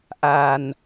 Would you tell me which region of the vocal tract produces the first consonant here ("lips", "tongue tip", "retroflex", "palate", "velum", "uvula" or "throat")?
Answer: throat